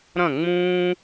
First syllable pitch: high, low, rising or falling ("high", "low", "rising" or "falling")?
falling